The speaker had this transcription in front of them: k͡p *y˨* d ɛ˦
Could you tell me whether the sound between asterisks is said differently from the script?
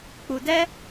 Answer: yes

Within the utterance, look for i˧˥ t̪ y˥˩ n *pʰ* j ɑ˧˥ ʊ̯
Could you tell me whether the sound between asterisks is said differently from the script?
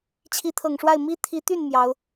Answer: yes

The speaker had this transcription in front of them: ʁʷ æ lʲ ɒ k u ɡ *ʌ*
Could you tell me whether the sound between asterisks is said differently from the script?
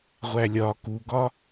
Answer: yes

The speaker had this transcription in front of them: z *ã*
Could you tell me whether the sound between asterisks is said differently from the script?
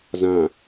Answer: no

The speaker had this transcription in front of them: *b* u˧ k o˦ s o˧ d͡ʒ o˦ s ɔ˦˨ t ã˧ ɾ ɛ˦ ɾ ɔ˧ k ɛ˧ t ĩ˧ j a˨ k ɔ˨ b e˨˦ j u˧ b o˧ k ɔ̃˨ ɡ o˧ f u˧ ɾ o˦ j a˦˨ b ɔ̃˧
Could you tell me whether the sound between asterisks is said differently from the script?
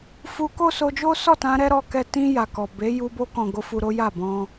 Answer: yes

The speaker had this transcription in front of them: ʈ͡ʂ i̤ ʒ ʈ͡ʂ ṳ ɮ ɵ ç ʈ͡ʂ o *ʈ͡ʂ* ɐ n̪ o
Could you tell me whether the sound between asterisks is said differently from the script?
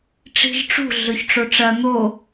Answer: no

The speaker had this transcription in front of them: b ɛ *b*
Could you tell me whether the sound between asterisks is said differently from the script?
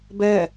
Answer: yes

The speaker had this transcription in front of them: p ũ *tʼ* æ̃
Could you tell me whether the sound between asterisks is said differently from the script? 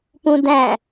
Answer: yes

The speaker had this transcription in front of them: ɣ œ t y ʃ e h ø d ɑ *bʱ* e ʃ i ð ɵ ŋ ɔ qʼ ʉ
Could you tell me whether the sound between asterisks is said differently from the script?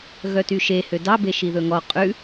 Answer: yes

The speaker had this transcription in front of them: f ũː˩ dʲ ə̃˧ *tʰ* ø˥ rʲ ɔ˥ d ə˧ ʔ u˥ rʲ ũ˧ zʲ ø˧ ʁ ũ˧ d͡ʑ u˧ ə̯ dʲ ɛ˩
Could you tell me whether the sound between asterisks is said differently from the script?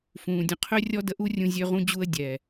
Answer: yes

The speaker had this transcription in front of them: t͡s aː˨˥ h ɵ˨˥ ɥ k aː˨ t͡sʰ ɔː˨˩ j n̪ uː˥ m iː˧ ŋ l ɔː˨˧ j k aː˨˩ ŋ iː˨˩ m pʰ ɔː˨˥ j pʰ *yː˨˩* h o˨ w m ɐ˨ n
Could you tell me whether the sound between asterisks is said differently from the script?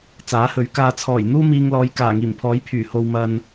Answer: no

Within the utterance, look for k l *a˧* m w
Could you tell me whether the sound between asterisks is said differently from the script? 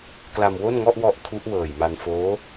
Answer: no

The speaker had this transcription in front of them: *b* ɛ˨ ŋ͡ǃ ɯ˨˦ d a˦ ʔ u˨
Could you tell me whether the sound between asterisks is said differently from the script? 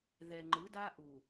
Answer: yes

